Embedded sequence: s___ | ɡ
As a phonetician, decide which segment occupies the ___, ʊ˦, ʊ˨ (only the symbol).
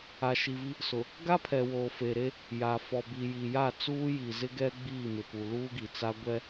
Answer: ʊ˨